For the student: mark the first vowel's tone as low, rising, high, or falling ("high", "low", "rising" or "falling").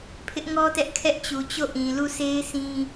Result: high